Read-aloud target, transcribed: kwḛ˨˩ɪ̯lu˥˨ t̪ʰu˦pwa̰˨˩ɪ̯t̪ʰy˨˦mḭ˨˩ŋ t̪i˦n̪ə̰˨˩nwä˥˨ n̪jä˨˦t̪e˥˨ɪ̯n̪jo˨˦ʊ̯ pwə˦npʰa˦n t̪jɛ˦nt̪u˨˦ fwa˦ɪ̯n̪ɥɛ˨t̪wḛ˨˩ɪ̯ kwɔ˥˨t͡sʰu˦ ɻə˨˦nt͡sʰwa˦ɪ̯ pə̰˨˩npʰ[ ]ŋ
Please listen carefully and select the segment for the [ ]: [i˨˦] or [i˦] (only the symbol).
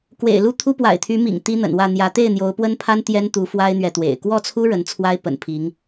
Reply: i˨˦